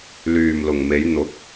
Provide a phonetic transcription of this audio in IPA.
l yː˨ m l ʊ˨ ŋ m e˨˧ j n̪ ʊ˨˥ k̚

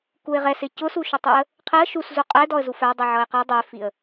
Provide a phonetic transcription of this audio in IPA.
k u ɪ̯ ʁ ɛ s ɪ c ʊ s u ʃ ʊ tˤ u ə̯ | qʰ ɪ ə̯ ʃ u s z u qʼ ɛ d ɔ ə̯ z u f æ dˤ i ʕ ʌ ɪ̯ q ɛ dˤ ɛ f i ə̯

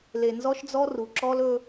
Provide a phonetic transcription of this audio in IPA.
l e˨ n z ɔ˦ ʃ d͡z ɔ˦ r u˨ ǁ ɔ˦ l ɵ˦

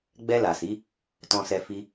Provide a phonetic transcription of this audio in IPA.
ɡ͡b ɛ˧ l a˨ s i˨˦ | t ɔ̃˧ s ɛ˧ f i˧

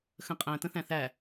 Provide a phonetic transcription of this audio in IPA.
x ə̃ qʼ æ̃ t ə̃ θ æ̃ θ æ

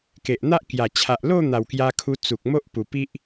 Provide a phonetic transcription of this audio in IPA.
k e˨ ʔ n̪ a˦ ʔ k j a˨˩ t͡ɕʰ a˨ ʔ l o˥˧ n̪ a˨˩ w k j a˧ kʰ u˧ t͡s u˨ k̚ m o˦ ʔ p u˨˩ p i˦ ʔ

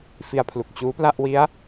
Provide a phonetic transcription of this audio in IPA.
f i˧ a̯ pʰ l u˨˩ k̚ t͡ɕ uː˦˥ p l a˥˩ ʔ w i˦˥ a̯

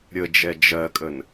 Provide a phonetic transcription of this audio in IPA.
ɾʲ ə d͡ʒ ɛ d͡ʒ ɜ kʼ ə n

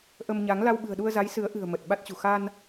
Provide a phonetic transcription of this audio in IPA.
ʔ ə˧ m ɲ a˨˦ ŋ l a˧ w ɓ ɨ̤˨˩ ə̯ ɗ u˧ ə̯ z a˨˦ j s ɨ˨˦ ə̯ ʔ ɨ̤˨˩ ə̯ m ə˨˩ t̚ ɓ a˦˥ t̚ t͡ɕ ṳ˨˩ x a˧ n

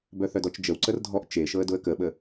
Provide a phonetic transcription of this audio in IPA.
b œ θ œ d ɔ t͡ʃ d͡ʒ ə w ǀ ə r dʱ ɔ ʔ t͡ʃ e ʃ ɤ ə̯ d ʊ ə̯ k ə ɓ ə

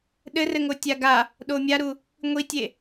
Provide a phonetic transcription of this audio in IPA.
ɗ ɘ r ɘ ŋ o tʲ a ɡ a | ɗ o mʲ a ɾ u | ŋʷ i tʲ e

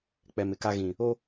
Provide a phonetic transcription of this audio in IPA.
k͡p ɛ˨ m ɪ˨ k a˦ ɣ ĩ˨ | o˦

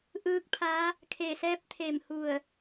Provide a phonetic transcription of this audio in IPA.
ʔ ɯː˧˥ k̚ pʰ a˧˥ | kʰ e˧˩ s ɛː˧˥ p̚ t̪ʰ e˧˩ m h u˧˩ ə̯

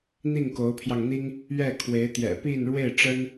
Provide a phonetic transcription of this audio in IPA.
n̪ i˥˩ ŋ k o˧˥ ʊ̯ pʰ j ɑ˧ ŋ n̪ i˥ ŋ | ɥ ɛ˥˩ kʰ w e˧˥ ɪ̯ t̪ j ɛ̰˨˩ p i˥˧ n ɻ w e˥˩ ɪ̯ ʈ͡ʂ ə˥ n

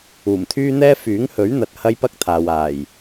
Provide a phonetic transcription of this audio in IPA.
uː˨˩ m t̪ʰ yː˥ n̪ ɛː˥ f yː˨˥ ŋ h ɵ˨˥ ɥ n̪ ɐ˨ t̚ h ɐ˥ j p ɐ˥ k̚ t̪ʰ aː˨ w aː˨˩ j

